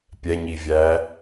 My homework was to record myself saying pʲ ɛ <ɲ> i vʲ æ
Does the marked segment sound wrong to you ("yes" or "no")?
no